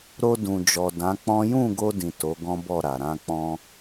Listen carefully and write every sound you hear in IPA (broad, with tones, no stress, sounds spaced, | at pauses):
ɾ o˧ d ũ˨ d͡ʒ ɔ˨ d ã˨˦ k͡p ɔ̃˦ j ũ˦˨ ɡ o˧ d ĩ˨ t o˨˦ ɡ ɔ̃˦ b ɔ˦˨ ɾ a˨ ɾ ã˧ k͡p ɔ̃˧